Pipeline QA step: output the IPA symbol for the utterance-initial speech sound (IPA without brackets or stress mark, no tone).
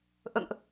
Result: ʔ